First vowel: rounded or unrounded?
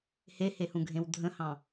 unrounded